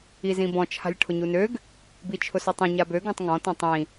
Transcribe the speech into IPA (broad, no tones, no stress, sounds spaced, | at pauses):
i z ĩ b ɔ̃ t͡ʃʰ a̤ lʲ ʈʰ ʊ ɲ u n ø ɡ | b i t͡ʃʰ ʊ s ɔ tˤ ĩ ɲ a b ø ɡ ɔ̃ tˤ ŋ ɔ̃ t ɔ̃ tˤ ĩ